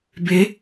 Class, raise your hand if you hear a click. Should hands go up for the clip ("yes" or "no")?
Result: no